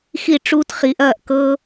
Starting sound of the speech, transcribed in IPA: x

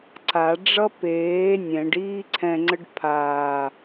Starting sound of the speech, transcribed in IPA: ǀ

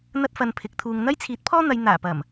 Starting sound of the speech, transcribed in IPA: n̪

